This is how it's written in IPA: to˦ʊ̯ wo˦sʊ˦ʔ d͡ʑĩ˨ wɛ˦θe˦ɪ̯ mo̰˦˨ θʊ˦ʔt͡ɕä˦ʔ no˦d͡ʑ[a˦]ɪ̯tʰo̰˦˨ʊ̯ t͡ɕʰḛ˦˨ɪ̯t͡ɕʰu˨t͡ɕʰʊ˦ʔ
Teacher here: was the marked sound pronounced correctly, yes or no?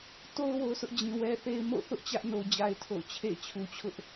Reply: yes